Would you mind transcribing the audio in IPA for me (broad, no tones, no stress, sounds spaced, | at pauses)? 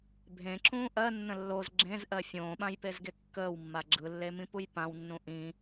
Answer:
bʱ ẽ ǁ ũː ʔ ɜ nː ə̃ lː o z ɡ͡ǁ ẽ z ʔ ɜ fʲ õː ɓ ã j p e z ɡ e kː əː w mː a ɡ͡ǁ ɯ lː e m ĩ p u j p ã w nː ũ ʔ ĩ